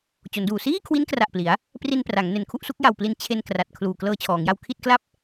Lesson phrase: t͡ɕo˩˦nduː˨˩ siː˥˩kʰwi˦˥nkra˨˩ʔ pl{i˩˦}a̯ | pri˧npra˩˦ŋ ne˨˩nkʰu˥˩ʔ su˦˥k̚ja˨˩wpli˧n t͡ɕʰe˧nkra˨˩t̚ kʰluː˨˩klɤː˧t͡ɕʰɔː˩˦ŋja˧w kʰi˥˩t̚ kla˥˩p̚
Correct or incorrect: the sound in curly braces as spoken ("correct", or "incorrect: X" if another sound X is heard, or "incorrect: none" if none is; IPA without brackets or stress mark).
correct